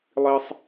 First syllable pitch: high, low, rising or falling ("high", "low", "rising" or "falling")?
high